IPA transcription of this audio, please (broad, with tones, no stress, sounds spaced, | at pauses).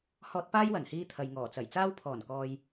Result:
h ɔː˥ t̚ p aː˥ j w ɐ˨˩ n h iː˧ t̪ʰ ɐ˨ j ŋ ɔː˨˩ t͡s ɐ˨˩ j t͡s aː˥ w pʰ ɔː˨˩ n k ɔː˨ j